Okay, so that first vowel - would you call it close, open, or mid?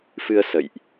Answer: close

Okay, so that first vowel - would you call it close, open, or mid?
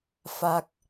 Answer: open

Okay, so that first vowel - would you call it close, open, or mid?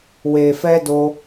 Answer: mid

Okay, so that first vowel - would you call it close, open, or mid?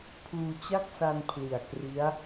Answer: close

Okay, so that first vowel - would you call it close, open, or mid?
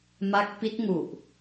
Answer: open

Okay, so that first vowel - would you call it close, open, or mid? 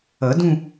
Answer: mid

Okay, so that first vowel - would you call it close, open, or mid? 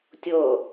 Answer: mid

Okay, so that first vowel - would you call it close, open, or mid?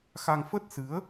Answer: open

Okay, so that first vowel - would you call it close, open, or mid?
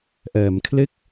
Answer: mid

